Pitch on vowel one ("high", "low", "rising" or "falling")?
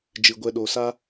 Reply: low